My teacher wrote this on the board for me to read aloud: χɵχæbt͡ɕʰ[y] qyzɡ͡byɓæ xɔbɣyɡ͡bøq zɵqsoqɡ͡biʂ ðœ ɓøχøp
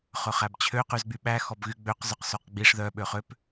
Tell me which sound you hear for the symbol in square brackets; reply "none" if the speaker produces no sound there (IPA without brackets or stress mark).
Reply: ø